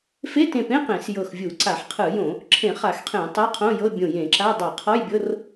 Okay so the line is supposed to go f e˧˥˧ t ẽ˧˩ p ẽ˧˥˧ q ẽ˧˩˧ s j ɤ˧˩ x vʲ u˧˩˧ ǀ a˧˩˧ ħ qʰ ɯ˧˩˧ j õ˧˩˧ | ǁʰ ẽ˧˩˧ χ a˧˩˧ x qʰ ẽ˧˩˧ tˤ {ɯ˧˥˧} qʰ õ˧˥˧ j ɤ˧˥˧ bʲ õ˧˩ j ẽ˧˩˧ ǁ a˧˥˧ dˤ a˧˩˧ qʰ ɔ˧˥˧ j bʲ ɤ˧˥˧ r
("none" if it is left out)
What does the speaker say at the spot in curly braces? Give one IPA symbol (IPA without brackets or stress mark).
ɤ˧˥˧